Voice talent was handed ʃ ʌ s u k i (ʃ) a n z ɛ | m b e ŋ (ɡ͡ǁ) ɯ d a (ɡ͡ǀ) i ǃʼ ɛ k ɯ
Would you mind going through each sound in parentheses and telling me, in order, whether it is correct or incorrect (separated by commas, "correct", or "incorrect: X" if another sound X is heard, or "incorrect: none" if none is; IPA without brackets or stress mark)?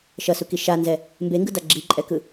correct, incorrect: ɡ, incorrect: ɡ͡ǁ